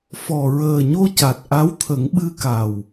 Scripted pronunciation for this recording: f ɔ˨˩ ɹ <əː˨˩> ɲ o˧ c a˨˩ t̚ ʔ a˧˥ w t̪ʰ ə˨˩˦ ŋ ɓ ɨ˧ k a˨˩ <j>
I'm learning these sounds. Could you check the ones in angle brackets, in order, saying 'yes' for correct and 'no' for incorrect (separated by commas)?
yes, no